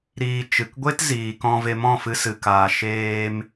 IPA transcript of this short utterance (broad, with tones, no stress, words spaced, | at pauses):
ɾiː˧ t͡ʃɨ˨kɡʷe˦t ziː˨kɔ̃˧ve˧ mɔ̃˦˨fɨ˧sɨ˨kaː˨ ʃeː˧m